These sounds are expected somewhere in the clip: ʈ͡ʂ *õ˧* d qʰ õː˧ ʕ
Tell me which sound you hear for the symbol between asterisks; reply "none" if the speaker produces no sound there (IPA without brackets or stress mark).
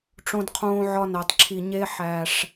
õ˧